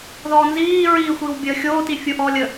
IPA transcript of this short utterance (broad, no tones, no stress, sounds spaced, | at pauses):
ð ɔː n z iː ɹ iː xʷ iː w bʲ əː xʲ oː t i fʲ u ʔ ɔː lʲ ə